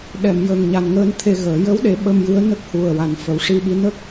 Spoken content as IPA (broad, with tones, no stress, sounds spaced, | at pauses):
ɗ ɛ˨˩˨ m j ə˨˩ ŋ ɲ a˨˩ n ŋ əː˧ n t̪ʰ e˧ ɣ əː˨˩˦ j ə˧˥ w ɗ e˨˩˦ ɓ ə˧ m j ɨ˧˥ ə̯ n ə˦˥ k̚ h u˨˩ ə̯ w a˨˩˦ n f ə˨˩˦ w ʂ i˧ ɓ i˧˥ n ə˦˥ k̚